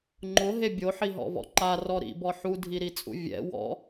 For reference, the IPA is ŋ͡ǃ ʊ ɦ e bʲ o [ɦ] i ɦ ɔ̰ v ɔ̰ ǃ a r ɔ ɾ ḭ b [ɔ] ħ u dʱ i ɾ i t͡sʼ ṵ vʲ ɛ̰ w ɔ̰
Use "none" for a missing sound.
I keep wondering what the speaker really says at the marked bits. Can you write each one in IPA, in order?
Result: ħ, ɔ

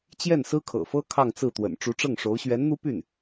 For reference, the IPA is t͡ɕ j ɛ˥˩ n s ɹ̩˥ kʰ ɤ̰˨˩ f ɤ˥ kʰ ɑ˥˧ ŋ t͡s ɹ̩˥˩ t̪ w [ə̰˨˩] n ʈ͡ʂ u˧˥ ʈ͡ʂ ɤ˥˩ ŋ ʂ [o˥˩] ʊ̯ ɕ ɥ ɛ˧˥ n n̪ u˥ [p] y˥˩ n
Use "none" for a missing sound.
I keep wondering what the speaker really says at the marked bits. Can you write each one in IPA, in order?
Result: ə̰˨˩, o˧˥, p

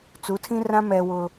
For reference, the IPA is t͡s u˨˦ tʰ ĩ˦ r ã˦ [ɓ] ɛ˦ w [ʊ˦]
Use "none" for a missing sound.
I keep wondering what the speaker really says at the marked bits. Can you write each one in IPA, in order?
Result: m, ʊ˦

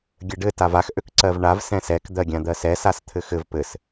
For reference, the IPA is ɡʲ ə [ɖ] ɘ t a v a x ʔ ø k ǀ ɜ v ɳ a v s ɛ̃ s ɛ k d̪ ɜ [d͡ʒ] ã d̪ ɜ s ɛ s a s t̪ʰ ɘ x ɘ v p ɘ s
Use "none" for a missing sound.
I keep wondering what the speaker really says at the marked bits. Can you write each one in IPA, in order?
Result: ɖ, ɡʲ

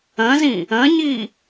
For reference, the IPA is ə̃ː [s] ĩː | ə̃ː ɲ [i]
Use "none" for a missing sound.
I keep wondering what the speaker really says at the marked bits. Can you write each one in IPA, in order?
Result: z, iː

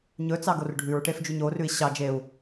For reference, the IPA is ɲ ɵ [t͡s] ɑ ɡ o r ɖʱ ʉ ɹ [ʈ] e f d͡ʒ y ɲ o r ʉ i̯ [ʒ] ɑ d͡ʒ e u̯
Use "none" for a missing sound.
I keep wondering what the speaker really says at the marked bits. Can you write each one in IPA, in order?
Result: t͡s, ʈ, ɕ

